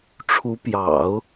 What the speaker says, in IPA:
ʈ͡ʂʰ u˧˥ p j ɑ̰˨˩˦ ʊ̯

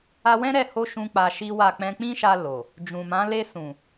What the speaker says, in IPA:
a˧ w ɛ̃˦ ɾ ɛ˦˨ h o˧ ʃ ũ˦ k͡p a˧ ʃ i˦ w a˦˨ k͡p ɛ̃˧ k͡p ĩ˦ ʃ a˧ l o˨ | d͡ʒ ũ˨ m ã˨˦ l e˧ s ũ˨

